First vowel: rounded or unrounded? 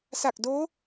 unrounded